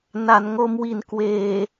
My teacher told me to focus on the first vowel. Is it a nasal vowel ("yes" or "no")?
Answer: no